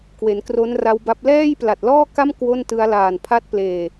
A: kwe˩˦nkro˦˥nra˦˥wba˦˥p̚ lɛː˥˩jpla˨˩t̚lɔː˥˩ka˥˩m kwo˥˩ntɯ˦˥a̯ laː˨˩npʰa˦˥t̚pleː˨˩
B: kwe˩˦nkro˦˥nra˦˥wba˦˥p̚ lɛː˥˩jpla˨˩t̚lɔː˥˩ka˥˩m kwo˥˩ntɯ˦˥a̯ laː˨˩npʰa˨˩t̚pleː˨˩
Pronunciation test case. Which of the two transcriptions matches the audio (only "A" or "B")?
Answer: A